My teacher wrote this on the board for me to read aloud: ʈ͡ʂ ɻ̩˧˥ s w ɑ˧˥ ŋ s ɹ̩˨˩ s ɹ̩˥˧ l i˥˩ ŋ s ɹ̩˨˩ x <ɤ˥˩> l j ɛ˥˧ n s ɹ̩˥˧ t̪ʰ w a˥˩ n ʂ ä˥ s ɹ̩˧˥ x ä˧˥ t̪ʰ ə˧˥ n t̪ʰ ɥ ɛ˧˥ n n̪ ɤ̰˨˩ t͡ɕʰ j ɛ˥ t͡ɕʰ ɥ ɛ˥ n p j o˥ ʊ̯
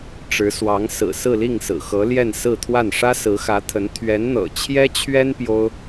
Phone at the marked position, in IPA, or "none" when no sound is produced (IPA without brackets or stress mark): ɤ˧˥